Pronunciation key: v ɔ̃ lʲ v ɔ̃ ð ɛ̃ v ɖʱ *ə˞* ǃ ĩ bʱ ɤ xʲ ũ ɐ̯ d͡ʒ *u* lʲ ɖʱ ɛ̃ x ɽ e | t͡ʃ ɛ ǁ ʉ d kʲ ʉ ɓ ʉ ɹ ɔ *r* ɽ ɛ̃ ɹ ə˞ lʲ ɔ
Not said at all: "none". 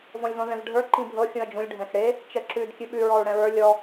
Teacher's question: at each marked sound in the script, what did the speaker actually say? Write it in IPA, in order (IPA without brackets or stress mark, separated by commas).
ə˞, ũ, ɹ